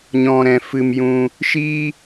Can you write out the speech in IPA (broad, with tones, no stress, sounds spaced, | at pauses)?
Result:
ɲ ɔ̃˨ ɾ ɛ̃˨ f ɨ˨ m j ũ˧ | ʃ iː˧